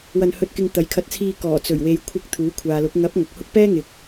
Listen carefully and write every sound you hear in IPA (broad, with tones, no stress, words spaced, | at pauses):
wɐ˧nhɵ˧t̚kɪ˧ŋ t̪ɐ˨˥jkʰɐ˧t̚t͡sʰiː˧ kɔː˨˩t͡sɵ˨˩ɥwe˨j kʷʰɪ˧k̚ t̪ʰuː˨˥kʷʰaː˨lʊ˨˥k̚ ŋɐ˨˥p̚ ŋɐ˨k̚hʊ˥k̚ pɛː˥ ŋɪ˨˥k̚